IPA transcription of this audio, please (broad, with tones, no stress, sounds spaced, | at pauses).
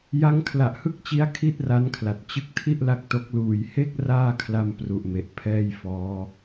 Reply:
j a˦˥ ŋ kʰ l a˨˩ ʔ h ɯ˥˩ k̚ t͡ɕ i˦˥ a̯ kʰ i˥˩ t̚ r a˦˥ n kʰ l a˨˩ t̚ t͡ɕ ɯ˦˥ k̚ tʰ i˥˩ ʔ l a˦˥ k̚ t o˦˥ k̚ l uː˨˩ j h e˥˩ k̚ r aː˥˩ kʰ l a˧ m p r u˨˩ ʔ m e˨˩ ʔ pʰ ɛː˥˩ j f ɔː˦˥